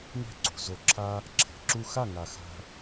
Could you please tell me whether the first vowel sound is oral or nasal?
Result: oral